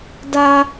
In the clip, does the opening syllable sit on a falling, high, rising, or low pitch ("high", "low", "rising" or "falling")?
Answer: high